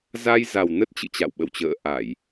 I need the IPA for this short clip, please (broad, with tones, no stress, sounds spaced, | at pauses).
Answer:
z a˧ j z a˨˩ w n ə˦˥ t̚ t͡ɕ ɨ̰˧˨ t͡ɕ a̰˧˨ w ɓ ə̰˧˨ w t͡ɕ ə̰ː˧˨ ʔ a˧˩˨ j